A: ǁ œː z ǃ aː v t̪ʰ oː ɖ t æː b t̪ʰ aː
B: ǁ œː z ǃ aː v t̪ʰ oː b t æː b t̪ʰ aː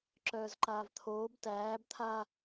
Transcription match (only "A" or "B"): B